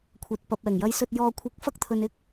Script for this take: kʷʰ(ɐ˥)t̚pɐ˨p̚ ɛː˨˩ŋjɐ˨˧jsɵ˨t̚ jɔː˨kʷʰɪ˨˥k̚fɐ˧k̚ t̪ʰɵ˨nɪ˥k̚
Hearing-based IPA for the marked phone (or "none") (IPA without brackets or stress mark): ɐ˨